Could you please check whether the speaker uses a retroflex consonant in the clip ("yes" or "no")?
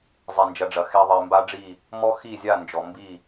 yes